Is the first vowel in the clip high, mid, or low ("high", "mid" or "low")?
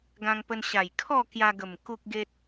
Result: low